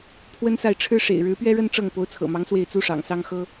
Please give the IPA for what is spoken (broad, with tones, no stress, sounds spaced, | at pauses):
pʰ w ə˥ n s a˥˩ ɪ̯ ʈ͡ʂʰ ɻ̩˥ ʂ ḛ˨˩ ɪ̯ ɻ ɻ̩˧˥ p ɥ ɛ˥ ɻ ə˥ n ʈ͡ʂ ɤ˥˩ ŋ p o˧˥ ʊ̯ t͡sʰ ɤ̰˨˩ m ɑ˧˥ ŋ s w e˥˩ ɪ̯ t͡s u˥ ʂ ɑ̰˨˩ ŋ s ɑ˥ ŋ x ɤ˥